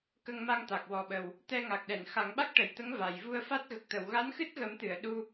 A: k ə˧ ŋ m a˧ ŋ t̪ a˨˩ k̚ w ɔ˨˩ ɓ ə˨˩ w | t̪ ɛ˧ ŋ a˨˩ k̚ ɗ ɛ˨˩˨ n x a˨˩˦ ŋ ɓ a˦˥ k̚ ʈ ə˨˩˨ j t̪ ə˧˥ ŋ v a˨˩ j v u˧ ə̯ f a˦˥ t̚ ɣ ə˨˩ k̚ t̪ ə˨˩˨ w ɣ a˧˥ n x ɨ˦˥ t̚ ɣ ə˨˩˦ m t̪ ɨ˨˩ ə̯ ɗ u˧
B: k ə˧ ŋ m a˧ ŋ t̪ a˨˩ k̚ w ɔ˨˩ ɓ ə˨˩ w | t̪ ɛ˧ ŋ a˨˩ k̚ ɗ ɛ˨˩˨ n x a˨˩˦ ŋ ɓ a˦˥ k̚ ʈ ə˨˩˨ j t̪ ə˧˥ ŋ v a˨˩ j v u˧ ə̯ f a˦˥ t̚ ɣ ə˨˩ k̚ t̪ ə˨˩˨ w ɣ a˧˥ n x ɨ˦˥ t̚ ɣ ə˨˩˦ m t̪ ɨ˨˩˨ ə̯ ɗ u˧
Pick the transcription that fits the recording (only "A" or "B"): B